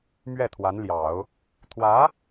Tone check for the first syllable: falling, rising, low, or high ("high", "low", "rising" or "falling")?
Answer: falling